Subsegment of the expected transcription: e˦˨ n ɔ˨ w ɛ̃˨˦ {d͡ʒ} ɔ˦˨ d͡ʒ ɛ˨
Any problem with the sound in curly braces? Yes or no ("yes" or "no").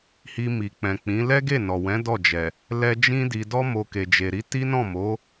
yes